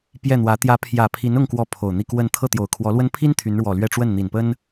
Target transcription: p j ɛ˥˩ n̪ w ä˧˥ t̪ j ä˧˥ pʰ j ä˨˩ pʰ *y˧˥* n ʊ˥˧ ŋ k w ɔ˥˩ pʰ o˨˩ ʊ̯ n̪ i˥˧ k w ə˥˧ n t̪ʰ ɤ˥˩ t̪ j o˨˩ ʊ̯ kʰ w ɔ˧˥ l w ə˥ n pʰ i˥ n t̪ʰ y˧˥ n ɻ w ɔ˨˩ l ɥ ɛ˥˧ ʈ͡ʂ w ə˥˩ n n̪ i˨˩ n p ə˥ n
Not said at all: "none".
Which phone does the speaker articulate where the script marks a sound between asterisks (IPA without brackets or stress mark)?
i˧˥